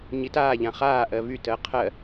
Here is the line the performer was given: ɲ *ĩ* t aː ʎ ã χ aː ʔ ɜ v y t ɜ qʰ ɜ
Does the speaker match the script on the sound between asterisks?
no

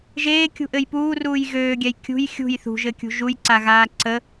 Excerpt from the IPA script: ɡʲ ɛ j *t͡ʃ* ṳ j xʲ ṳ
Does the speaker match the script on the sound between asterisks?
no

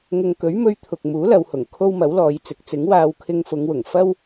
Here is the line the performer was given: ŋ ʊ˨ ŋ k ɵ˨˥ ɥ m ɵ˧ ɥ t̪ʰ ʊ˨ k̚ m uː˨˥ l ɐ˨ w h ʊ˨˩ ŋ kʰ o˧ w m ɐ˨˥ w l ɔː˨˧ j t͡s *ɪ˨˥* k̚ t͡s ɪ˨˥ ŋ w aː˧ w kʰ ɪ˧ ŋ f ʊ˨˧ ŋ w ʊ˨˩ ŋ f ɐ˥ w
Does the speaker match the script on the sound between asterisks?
yes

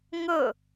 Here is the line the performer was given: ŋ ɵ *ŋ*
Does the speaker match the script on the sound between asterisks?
no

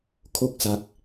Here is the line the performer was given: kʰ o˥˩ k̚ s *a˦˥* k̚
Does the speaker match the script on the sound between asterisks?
yes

